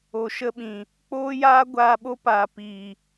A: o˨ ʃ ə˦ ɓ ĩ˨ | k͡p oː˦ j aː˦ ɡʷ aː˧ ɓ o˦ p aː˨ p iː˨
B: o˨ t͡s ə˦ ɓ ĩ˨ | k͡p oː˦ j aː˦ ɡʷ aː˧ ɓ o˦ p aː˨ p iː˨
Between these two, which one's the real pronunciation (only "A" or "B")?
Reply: A